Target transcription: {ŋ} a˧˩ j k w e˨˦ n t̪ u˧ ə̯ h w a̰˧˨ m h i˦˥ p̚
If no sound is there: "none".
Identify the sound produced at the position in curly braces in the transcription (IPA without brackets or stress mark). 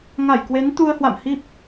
ŋ